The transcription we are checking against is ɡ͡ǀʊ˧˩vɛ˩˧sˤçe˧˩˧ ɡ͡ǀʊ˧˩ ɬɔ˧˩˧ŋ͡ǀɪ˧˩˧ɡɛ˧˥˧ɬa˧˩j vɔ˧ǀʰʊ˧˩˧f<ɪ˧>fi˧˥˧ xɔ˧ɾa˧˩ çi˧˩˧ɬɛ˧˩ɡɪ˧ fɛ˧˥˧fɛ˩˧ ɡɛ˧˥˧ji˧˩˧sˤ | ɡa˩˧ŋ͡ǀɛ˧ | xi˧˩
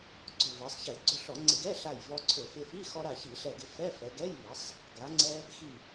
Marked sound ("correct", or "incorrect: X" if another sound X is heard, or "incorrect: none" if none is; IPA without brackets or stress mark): correct